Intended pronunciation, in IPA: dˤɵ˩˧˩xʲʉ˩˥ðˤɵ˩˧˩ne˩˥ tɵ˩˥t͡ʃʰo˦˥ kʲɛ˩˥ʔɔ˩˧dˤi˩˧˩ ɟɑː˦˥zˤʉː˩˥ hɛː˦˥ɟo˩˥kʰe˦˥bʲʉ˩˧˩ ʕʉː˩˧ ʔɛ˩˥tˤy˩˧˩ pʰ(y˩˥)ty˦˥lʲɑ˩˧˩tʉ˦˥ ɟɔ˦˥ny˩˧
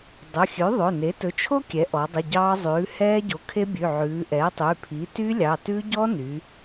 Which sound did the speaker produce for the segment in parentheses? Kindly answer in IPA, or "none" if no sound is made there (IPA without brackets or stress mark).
i˩˥